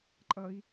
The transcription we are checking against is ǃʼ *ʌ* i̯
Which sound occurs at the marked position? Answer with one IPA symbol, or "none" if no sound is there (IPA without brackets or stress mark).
ʌ